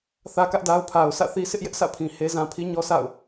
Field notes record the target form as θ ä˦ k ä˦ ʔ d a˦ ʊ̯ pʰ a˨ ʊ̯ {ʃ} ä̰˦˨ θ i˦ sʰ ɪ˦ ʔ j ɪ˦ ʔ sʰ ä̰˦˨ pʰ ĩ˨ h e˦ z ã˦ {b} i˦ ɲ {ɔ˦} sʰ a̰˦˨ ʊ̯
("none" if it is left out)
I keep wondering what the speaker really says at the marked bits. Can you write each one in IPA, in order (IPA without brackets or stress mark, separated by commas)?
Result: s, pʰ, ɔ˦